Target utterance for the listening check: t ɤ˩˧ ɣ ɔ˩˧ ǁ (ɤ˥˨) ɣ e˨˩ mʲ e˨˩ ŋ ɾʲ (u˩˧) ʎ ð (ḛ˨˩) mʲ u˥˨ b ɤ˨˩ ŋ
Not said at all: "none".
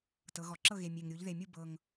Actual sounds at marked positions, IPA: ɤ˥˨, u˩˧, e˨˩

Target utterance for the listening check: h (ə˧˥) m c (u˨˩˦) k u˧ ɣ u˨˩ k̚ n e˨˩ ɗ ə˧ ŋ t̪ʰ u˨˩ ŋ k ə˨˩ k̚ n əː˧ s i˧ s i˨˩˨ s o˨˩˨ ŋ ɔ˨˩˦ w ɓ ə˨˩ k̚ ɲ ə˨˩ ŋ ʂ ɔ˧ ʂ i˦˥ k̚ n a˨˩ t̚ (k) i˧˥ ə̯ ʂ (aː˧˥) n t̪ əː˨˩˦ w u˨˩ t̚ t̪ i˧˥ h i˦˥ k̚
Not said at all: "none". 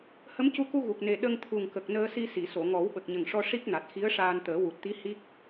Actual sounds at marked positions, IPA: ə˧˥, u˧, x, aː˧

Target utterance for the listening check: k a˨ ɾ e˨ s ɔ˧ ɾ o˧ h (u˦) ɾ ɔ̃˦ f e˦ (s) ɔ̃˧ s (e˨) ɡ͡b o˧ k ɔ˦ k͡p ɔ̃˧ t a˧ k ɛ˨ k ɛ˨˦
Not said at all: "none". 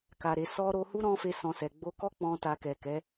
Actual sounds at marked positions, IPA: u˦, s, ɛ˨

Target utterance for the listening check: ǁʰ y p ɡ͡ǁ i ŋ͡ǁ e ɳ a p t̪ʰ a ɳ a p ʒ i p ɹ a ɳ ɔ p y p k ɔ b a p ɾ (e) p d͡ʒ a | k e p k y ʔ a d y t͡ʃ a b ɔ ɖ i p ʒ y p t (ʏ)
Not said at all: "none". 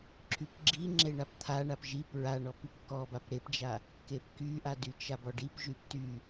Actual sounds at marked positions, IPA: e, y

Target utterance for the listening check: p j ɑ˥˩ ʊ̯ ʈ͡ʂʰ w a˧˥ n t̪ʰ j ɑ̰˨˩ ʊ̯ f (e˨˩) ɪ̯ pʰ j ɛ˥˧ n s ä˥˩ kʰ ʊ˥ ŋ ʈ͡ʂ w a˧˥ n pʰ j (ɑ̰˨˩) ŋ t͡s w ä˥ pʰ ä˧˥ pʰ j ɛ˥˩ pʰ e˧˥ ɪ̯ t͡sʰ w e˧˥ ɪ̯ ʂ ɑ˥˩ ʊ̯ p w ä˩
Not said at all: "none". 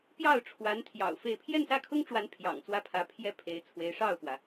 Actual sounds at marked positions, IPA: e˥˧, ɑ̰˨˩

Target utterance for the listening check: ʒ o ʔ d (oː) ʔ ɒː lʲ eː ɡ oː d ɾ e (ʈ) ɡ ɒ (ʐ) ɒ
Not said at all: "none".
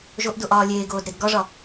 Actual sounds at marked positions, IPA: o, d, ʐ

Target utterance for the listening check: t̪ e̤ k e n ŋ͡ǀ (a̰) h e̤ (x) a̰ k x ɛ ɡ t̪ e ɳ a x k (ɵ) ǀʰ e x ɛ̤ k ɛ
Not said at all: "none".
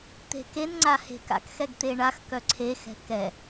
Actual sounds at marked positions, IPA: a, k, œ

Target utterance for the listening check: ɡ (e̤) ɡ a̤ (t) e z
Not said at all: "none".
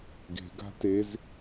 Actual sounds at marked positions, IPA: e̤, t

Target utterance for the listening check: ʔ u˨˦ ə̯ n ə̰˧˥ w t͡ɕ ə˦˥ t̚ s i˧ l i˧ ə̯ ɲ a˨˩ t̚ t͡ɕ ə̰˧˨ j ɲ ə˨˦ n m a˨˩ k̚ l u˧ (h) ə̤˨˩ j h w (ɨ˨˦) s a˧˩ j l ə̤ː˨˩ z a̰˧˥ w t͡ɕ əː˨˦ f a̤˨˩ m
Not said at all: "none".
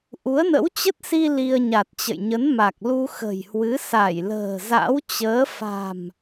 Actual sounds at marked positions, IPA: x, ɨ˨˦

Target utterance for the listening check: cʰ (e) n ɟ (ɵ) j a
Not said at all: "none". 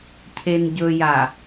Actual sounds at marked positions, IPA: e, ɵ

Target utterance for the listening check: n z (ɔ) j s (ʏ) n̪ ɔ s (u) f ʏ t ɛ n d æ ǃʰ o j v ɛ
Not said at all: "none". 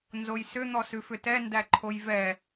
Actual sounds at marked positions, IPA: o, ʏ, ʉ

